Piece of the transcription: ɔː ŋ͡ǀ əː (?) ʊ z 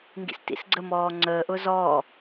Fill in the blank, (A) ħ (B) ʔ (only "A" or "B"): B